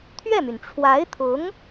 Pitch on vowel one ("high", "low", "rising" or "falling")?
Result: falling